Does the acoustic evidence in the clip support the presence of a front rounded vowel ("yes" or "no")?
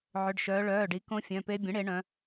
yes